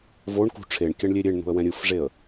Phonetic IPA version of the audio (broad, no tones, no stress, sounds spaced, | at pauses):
v o ɳ k ṳ ʈ͡ʂʰ e ɳ kʲ a ɳ lʲ e ɾʲ e ɳ n̪ ṳ ə̯ w ɛ̃ ɾʲ ɯ f ʐ e ə̯